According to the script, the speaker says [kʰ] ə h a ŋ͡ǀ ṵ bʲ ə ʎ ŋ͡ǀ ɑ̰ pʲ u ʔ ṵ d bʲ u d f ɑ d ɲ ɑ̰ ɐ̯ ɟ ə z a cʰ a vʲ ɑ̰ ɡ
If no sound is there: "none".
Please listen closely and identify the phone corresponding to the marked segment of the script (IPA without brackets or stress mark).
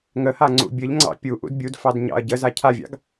ŋ